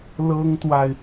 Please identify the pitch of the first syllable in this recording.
high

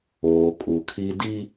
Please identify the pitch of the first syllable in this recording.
low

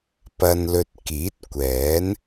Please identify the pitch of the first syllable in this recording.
low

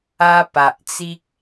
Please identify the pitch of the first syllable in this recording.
high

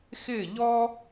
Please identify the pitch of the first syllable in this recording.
falling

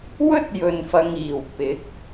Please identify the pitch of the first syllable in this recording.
high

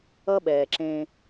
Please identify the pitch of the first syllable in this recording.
high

